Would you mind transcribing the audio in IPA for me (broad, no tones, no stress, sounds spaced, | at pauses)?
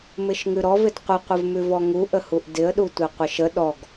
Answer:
m ɪ ʃ ŋ ʉ ɾ ɔ v ɪ d qʷ ə qʷ ɪ v m ʉ v ɔ ŋ u ʔ ə h u ʔ d ɪ ə̯ ɗ u tʷ e qʷ ɪ ʃ ə ɗ ɔ ɡ